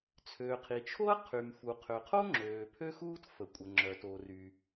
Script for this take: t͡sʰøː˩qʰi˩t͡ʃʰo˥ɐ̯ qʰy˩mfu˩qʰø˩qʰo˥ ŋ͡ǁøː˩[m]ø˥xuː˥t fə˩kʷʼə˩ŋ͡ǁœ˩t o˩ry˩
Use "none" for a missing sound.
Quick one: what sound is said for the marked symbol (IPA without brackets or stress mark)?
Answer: pʰ